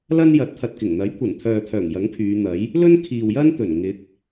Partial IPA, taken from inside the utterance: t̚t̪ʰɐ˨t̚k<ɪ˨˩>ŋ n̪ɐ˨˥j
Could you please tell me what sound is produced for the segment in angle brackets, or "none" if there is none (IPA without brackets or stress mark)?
ɪ˨˩